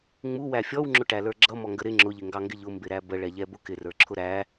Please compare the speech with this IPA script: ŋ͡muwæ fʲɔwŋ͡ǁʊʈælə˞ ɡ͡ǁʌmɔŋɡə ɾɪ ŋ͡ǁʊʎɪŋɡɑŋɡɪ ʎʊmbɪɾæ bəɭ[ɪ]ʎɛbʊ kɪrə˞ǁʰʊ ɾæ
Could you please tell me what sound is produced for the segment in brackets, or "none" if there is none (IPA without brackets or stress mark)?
ɛ